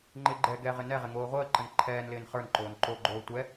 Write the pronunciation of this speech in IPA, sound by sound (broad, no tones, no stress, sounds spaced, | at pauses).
ŋ͡ǃ ɪ ɡ͡ǃ ɛ ɡ ɛ ʁ ɪ n ɛ ʁ ɪ ŋ oː ʁʷ əː ǃ ə n ǃʰ ɛː n l ɪː n χ ə˞ n ǃ oː n ǃ o ɡ͡ǃ oː tʷ ɛ